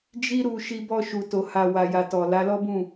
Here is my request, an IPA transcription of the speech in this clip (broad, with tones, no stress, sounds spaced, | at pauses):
d͡ʒ i˦ ɾ u˧ ʃ i˧ b ɔ˧ ʃ u˨ t o˨ h a˧ w a˨ j a˨ t ɔ˨ l a˨˦ l ɔ˦ b ũ˦˨